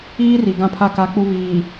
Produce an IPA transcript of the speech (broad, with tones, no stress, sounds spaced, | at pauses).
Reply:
iː˦ r i˨ ɡ ã˦ pʰ a˦ k a˦ k͡p u˦ β iː˨